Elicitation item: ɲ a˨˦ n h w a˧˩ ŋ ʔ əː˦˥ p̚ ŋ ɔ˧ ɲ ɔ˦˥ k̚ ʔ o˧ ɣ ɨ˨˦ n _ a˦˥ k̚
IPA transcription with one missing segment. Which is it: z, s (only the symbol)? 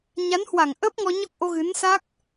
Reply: s